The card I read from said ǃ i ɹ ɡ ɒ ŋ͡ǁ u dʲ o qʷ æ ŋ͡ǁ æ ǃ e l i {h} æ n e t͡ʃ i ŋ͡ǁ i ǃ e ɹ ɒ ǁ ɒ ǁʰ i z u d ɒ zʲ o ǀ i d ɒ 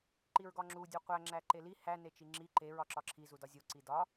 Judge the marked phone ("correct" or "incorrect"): correct